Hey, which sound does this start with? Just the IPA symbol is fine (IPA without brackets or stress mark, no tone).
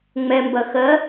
ŋ͡m